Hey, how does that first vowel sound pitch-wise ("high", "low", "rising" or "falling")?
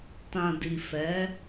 low